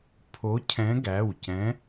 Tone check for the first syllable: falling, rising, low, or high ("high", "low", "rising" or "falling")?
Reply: rising